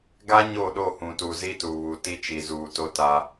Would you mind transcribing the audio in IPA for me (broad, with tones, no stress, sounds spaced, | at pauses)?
ɡ a˦ ɲ o˦˨ ɗ o˦˨ h ũ˨ t u˨ z i˦ t u˨ β u˨ t i˦ t͡ʃ i˨ z uː˨ t o˦ t a˦